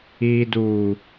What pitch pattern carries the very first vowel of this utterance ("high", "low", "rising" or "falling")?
low